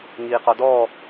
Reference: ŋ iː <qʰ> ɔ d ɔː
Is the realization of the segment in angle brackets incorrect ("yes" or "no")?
yes